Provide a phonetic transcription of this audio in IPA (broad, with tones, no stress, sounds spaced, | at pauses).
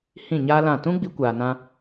h ĩ˦˨ ɲ aː˦ l ã˦˨ t ũ˦ ɡ͡b i˧ kʷ aː˨ n ã˧